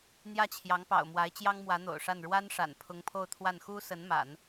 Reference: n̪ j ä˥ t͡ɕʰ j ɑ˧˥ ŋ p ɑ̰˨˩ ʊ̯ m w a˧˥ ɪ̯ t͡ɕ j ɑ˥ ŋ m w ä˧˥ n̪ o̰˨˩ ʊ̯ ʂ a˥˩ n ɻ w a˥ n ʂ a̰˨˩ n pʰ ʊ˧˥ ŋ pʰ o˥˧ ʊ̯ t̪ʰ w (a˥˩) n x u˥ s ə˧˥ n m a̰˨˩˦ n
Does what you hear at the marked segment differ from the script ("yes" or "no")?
no